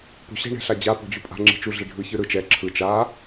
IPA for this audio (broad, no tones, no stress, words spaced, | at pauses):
po̤ɕɛ̤ ɳɛ̤ɬad͡ʑa po̤d͡ʑupʼa̤ ŋ͡ǁi̤t͡ʃu ɮiɖʱɯ çɯɾɯ t͡ʃɛ ǁʰɯ t͡ʃa